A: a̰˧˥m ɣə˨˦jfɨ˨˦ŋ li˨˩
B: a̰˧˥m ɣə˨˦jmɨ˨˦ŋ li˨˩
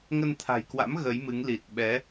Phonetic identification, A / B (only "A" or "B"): B